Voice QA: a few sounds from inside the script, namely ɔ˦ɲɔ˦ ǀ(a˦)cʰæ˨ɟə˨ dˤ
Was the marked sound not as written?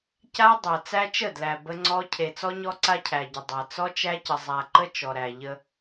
no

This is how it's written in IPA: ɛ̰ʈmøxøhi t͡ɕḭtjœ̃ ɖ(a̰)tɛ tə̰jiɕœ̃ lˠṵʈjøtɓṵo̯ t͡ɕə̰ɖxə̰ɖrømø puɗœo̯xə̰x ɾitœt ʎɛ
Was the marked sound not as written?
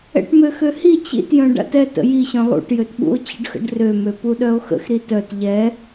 no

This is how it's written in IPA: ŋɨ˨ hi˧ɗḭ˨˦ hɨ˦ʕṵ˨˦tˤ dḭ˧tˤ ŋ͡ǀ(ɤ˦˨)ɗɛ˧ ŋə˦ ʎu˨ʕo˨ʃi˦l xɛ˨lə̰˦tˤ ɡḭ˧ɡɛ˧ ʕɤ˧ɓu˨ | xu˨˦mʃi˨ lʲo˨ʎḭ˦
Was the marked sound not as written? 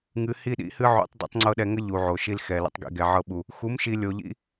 yes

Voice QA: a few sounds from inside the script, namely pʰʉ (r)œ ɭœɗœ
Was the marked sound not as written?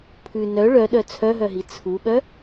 yes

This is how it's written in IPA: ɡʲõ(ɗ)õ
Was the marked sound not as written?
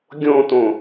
yes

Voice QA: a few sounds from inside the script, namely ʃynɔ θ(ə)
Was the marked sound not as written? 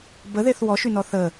no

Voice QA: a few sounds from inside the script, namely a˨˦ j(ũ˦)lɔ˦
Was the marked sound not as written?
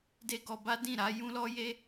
no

